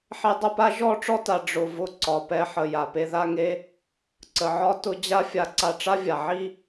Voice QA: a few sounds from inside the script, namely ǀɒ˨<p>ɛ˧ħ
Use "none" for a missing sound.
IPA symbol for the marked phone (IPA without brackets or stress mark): p